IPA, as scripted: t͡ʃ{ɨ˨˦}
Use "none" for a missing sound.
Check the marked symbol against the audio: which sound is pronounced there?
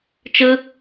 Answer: ɨ˦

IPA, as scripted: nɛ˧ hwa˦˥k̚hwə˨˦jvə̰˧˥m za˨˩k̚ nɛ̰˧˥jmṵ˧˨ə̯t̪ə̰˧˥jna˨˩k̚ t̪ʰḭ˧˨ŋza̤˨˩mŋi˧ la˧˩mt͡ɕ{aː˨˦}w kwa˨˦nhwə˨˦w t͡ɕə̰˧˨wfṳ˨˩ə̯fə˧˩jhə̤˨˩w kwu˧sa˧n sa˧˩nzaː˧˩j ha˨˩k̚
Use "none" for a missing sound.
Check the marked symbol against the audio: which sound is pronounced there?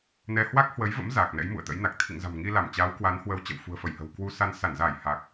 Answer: aː˨˦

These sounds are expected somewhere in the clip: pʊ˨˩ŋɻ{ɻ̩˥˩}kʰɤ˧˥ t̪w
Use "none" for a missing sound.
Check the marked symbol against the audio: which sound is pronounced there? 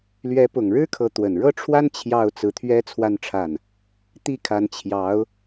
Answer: ɻ̩˥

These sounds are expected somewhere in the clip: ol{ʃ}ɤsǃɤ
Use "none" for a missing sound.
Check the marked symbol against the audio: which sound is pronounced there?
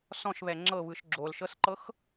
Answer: ʃ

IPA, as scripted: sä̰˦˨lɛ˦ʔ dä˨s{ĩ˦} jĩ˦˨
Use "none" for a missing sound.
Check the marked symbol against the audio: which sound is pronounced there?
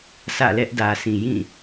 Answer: ĩ˨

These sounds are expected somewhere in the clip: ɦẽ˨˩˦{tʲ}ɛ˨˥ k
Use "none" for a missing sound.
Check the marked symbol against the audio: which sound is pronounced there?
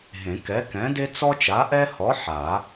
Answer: k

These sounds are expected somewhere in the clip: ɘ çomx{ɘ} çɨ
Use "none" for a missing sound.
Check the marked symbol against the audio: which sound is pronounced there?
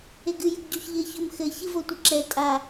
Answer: ɘ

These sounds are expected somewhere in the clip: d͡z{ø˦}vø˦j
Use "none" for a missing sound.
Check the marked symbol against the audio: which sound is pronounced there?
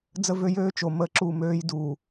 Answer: ə˦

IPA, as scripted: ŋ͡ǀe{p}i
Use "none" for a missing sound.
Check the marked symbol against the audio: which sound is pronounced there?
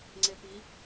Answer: p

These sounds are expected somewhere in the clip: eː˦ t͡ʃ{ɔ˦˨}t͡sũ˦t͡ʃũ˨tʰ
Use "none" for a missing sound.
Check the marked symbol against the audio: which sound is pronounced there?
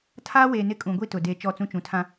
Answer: ɔ˦˨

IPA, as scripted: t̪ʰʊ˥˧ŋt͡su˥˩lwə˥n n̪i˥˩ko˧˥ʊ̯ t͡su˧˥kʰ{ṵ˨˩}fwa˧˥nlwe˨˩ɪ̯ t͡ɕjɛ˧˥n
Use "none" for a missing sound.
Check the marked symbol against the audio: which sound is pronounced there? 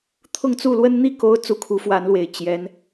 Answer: u˧˥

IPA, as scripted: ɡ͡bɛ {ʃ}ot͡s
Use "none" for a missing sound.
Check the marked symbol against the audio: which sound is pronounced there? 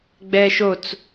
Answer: ʃ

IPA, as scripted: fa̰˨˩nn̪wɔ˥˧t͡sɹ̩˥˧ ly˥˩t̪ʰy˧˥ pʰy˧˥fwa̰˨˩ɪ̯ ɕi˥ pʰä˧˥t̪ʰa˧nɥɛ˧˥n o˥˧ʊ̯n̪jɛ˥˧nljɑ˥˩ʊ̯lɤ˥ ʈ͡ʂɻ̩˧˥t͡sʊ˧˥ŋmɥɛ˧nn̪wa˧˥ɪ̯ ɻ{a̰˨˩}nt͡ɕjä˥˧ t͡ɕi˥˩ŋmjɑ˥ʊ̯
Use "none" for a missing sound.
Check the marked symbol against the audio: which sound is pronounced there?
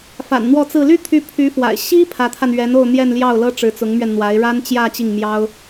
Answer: a˥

